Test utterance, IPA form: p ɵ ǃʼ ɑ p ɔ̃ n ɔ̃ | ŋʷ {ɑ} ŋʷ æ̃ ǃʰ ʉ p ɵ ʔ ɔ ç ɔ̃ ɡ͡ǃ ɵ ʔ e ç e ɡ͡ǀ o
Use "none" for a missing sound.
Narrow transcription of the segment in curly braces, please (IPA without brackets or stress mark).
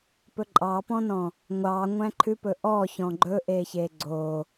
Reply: ɑ